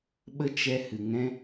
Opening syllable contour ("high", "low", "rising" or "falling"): high